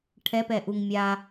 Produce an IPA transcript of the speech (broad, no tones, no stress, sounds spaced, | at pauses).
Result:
ʈʰ ɛ p ɛ ʔ u ŋ mʲ a